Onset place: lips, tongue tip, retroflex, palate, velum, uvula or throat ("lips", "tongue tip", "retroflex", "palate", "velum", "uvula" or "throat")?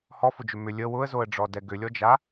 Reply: throat